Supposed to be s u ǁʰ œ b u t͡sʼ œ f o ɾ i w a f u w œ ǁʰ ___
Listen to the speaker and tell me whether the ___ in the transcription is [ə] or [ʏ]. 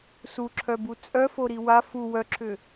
ʏ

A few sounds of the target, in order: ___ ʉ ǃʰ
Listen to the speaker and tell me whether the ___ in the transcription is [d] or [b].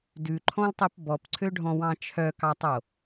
d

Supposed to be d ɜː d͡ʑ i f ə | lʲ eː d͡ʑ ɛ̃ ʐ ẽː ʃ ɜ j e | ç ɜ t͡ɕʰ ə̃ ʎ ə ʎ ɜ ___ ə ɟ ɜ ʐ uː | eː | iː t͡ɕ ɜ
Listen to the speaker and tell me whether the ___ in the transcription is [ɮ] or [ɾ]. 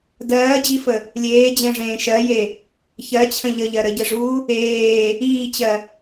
ɾ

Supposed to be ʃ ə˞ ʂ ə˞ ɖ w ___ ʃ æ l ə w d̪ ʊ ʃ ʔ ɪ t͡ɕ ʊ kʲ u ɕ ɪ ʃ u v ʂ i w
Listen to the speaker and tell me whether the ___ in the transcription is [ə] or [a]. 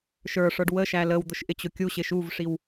ə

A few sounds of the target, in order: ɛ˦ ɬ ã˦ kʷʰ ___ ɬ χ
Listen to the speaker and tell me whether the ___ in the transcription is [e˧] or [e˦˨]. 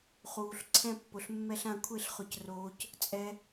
e˦˨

